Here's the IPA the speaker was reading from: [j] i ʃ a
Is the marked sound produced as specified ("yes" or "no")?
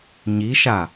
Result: no